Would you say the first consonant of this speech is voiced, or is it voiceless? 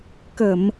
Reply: voiceless